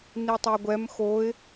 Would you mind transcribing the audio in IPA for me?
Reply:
n i tˤ ɛ ɡʷ ɛ m x o ɪ̯

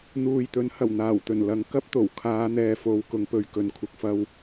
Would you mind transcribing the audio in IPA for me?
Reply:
n̪ uː˨ j t̪ ɵ˨˥ n h ɐ˨˩ w n̪ aː˨˩ w t̪ ɵ˨˩ n l ɐ˨˧ ŋ k ɐ˥ p̚ t̪ o˨˩ w kʰ aː˨˧ n̪ ɛː˨ f o˨˧ w k ʊ˨˧ ŋ p ɵ˧ ɥ k ɵ˨ n kʷʰ ɪ˨ k̚ f ɐ˧ w

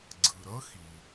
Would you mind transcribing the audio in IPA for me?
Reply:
ɡ͡ǀ ɯ˩ ɾ ʌ˥ x i˩

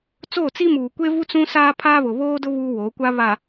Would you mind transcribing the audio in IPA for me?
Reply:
t͡s oː˦˨ t͡s i˦ m uː˨ kʷ e˦ v u˦ t͡s ũ˦ s aː˦ pʰ aː˦ β ʊ˨ β oː˦ d ʊ˦ β uː˦ w oː˨˦ kʷ a˦ β a˨

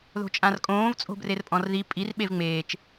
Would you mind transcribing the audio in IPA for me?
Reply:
ð o̤ t͡ʃʼ ã r kʼ õː v t͡sʼ o̤ b r e r pʼ ɔ̃ r ð i pʼ i r ɓ e v ŋ͡m eː t͡ʃ

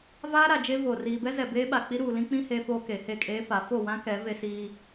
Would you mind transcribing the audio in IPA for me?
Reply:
v aː˦ ɾ a˨ d͡ʒ e˦ v o˨ r iː˨ b ɛ˦ z ɛ˨ b eː˦ ɓ a˨ k͡p i˦ ɾ uː˨ l ĩ˦ k͡p ĩ˦ h eː˦ f oː˦ k e˨˦ h e˦˨ kʼ eː˦ f a˨˦ f o˦˨ w ã˦ k ɛ˨˦ v e˦ s iː˦

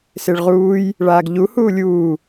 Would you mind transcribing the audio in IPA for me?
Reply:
s e ɭ ʁ uː j | ɭ aː ɡ ʎ u h uː lʲ uː

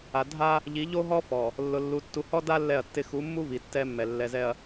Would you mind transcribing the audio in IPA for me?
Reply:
a˨ dʱ a˦ | ʎ i˨˦ ʎ o˦ ɦ ɔ˦ f ɔ˨ | lː ʊ˨ lː u˨ tː u˨ h ɔ˦ d a˦ lː ɛ˦˨ ɐ̯ tː ɪ˦ x u˨˦ mː u˦ v i˨ tː ɛ˦ mː ɛ˨ lː ɛ˨ z ɛ˨ ɐ̯

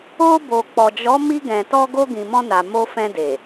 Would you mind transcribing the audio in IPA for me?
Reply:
o˧ b o˨ k͡p ɔ˨ d͡ʒ ɔ˨˦ m i˧ ɡ ɛ̃˨ t ɔ˧ ɡ o˧ ɡ ĩ˨ m ɔ̃˧ n a˨ m o˧ f ɛ̃˧ d e˨

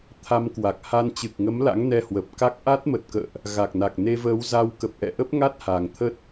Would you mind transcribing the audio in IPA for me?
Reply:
t̪ʰ a˧ m k w a˨˩ k̚ h a˧ n t͡ɕ ɨ˨˩ k̚ ŋ ə˨˦ m l a̰˧˥ ŋ n ɛ˧ h w ə˨˩ p̚ k a˦˥ k̚ ʔ a˦˥ t̚ m ə˨˩ t̚ k ə̰ː˧˨ ʔ | ɣ a˨˩ k̚ n a˨˩ k̚ n e˧ v əː˨˦ w z a˧ w k ə˨˩ p̚ ʔ ɛ̰˧˨ ʔ ə˦˥ p̚ ŋ a˦˥ t̚ h a˨˩ ŋ t̪ʰ ə˦˥ t̚

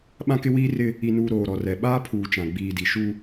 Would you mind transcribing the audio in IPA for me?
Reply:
ɓ ã˦ k ɪ˦ w iː˦ r ɪ˦ | i˨ n uː˨ ɾ oː˨ ɾ ɔ˨ r ɛ˨ ɓ aː˦ pʰ uː˨ t͡ʃ ã˨ ɡ͡b iː˨ d i˨ ʃ u˦

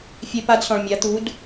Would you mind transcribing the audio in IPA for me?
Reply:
fʲ e˧ p a˧˥ d s ɔ̃˩ ɭ mʲ a˩˧ t̪ u˩˧ d

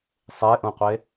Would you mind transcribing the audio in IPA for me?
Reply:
sˤ e ʔ ũ qʷ e

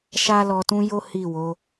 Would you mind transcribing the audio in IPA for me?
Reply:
ʃ a˦ l ɔ˧ t ũ˦ j o˦ h i˦˨ w o˨˦

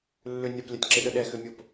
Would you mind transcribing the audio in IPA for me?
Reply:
lː ʏ nʲ ɐ p lʲ ɐ tʲ ǁ ɪ ɗ ə ɗ ɛ x ʏ mʲ o p

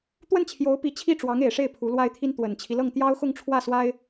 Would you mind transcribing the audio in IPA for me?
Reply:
t̪ w ə˥˩ n t͡ɕʰ j o˧˥ ʊ̯ p i˧˥ t͡ɕʰ i˥˩ ʈ͡ʂ w ɑ˧˥ ŋ e˨˩ ɪ̯ ʂ e˥˩ ɪ̯ pʰ u˧˥ l w a˥ ɪ̯ t̪ʰ i˥ n t̪ w ə˨˩ n t͡ɕʰ i˦ l ɤ˥˩ ŋ t̪ j ɑ˥ ʊ̯ x ʊ˥˧ ŋ ʈ͡ʂʰ w ä˥˩ s w a˥ ɪ̯

